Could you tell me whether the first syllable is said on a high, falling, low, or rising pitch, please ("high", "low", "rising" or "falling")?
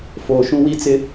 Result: low